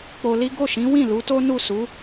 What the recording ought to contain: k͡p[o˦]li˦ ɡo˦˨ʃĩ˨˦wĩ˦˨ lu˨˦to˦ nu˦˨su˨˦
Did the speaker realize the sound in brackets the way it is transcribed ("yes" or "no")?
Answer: no